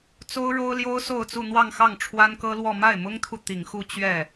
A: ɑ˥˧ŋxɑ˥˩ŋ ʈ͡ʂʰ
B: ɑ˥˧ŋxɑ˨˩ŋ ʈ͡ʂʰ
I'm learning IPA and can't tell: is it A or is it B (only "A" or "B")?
A